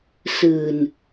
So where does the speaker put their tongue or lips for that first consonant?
tongue tip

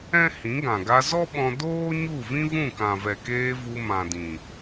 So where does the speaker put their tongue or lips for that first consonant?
throat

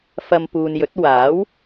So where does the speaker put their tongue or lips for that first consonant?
lips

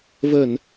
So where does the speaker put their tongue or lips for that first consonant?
lips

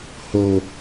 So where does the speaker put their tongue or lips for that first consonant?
throat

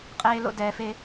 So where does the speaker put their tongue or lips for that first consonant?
uvula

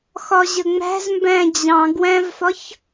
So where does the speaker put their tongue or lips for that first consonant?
velum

